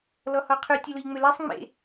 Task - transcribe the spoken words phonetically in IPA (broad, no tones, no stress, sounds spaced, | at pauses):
l ɔ h ɔ qʰ y tʲ ɐ l ʊ ʎ ŋ͡m ʏ l ɛ sˤ ŋ͡m ḛ